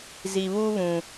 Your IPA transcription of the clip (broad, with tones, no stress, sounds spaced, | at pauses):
z i˨ β u˦ β ũ˨